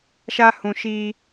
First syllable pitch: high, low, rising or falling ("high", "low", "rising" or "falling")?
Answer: high